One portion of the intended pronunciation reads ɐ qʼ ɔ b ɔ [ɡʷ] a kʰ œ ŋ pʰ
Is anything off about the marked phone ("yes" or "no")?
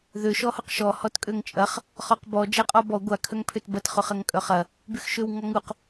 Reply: no